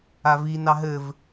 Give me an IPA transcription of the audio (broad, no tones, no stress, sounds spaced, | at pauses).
a v i n ɑ ɦ ɘ v